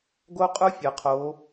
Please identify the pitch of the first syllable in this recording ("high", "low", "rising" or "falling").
high